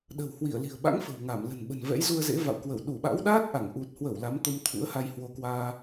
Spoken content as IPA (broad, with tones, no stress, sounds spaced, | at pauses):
ɗ ə̤˨˩ w h w i˧˩ ə̯ l i̤˨˩ ə̯ ɓ a̰˧˥ ŋ f ə̤˨˩ w ŋ a˧˩ m l ə̤˨˩ n ɓ ə̤˨˩ n v ɛ̰˧˥ j z u˧ ə̯ z ḛ˧˥ v a̰˧˨ w k w ə˧˩ w ɗ u˧˩ ɓ a̰˧˥ w ɗ aː˦˥ t̚ ʔ a˧˩ ŋ ʔ u˨˩ t̚ h w ə˧˩ w l a˨˦ m t̪ o˧ m t̪ʰ ṵ˧˥ ə̯ h a˧ j h w o˧ k w aː˧